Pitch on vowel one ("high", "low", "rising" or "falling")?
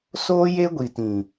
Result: high